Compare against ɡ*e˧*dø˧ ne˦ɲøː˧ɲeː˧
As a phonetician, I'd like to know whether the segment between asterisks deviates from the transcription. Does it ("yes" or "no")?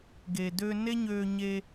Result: yes